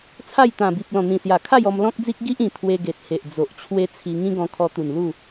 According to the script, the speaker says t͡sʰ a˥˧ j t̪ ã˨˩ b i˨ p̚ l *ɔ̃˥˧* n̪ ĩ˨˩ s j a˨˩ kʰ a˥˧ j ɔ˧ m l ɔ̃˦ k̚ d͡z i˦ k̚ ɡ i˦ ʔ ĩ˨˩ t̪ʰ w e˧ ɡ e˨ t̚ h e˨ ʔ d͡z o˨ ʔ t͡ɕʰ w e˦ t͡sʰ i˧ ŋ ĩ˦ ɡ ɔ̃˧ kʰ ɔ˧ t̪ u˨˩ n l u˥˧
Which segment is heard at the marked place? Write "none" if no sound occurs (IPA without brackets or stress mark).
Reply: ɔ̃˨˩